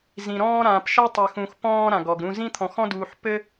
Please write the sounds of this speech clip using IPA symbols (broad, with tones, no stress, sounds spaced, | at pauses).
z ĩ˧ ɾ ɔ̃ː˥ ɾ ãː˧ p ʃ a˥ tˤ ɘ˧ x ũ˧ x p ɔ̃ː˥ ɾ ã˧ ɡ ɔ˧ ɡ ɾ ũ˥ z ĩ˥ t̪ʰ ɔ̃˧ x ɔ̃˥ d uː˧ ħ p ɘ˥